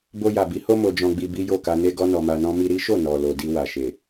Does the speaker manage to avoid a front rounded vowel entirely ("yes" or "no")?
yes